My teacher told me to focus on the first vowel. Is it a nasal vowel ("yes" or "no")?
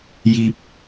no